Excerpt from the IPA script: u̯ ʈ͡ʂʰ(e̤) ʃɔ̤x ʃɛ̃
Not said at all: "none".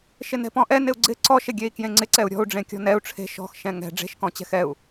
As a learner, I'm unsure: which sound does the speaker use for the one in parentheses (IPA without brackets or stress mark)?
e̤